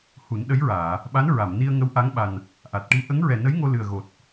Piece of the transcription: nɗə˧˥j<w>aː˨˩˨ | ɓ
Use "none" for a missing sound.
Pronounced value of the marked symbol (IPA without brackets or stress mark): ɹ